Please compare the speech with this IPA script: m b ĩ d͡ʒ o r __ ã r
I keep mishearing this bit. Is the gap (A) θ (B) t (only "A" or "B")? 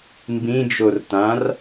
B